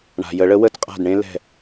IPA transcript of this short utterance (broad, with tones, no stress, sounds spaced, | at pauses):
ɳ a̤˩ j ə˨˩˦ ɭ ə˨˥ w ə˧˩ t qʼ a̤˧˩ d ɳ ẽ˦ l ɛ̤˧˩